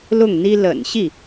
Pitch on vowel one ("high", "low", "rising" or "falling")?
falling